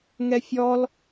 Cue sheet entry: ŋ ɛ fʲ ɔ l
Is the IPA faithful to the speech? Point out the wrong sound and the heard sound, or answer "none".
none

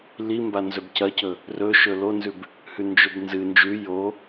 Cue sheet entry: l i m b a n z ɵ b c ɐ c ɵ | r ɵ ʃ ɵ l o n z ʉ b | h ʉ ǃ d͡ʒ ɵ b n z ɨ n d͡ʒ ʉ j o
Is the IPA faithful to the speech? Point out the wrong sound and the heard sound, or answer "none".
ǃ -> n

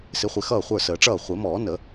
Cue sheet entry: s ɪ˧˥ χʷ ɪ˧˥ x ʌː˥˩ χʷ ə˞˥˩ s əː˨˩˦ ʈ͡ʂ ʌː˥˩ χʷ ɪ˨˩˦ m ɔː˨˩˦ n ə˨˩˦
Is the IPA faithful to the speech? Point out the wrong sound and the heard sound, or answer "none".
none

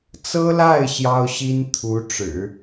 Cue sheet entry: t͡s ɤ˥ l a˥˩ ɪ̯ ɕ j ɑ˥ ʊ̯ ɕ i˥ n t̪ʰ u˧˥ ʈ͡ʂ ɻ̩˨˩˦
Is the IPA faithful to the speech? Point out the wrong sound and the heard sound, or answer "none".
none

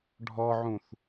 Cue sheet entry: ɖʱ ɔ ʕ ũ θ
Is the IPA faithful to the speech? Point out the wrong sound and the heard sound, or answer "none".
none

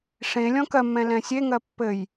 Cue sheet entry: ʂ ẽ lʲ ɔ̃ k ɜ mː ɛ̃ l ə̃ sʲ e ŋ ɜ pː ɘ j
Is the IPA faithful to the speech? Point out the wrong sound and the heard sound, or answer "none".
ə̃ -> ɛ̃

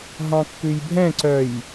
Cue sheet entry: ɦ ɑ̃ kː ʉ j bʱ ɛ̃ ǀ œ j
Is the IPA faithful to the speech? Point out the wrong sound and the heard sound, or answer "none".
none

